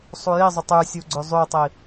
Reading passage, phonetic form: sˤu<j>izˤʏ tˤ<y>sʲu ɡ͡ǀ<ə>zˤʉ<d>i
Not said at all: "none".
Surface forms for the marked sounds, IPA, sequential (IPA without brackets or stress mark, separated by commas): j, y, ʏ, tˤ